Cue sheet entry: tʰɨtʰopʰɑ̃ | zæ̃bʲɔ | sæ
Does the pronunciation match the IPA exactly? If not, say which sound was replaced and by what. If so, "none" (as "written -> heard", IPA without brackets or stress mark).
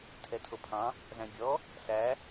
ɨ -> ɛ